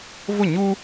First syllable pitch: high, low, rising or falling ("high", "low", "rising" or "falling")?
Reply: falling